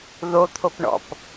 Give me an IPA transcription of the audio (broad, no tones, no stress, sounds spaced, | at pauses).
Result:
ð o t̪ʰ o p ɳ ɔ̰ p